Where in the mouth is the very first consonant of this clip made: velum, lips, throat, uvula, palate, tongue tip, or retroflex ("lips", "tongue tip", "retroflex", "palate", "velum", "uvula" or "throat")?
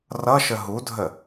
tongue tip